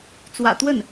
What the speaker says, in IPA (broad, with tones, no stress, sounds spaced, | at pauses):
t͡s w ä̰˨˩ t̪ w ə˥˩ n